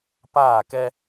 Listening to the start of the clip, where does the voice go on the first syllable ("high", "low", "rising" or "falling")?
falling